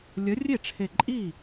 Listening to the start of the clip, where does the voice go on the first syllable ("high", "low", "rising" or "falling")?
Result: rising